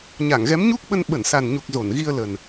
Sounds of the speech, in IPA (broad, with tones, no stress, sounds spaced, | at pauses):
ɲ a˧˩ ŋ ɣ ɛ˨˦ m ɲ u˦˥ k̚ ɓ ə˧ n ɓ ə˧˩ n s a˨˩ n ɲ u˨˩ k̚ z o˧˩ n ɣ i˧ ə̯ l ə˨˩ n